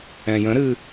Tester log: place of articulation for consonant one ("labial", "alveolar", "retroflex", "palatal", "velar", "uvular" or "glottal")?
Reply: palatal